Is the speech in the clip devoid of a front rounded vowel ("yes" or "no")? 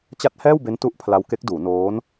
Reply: yes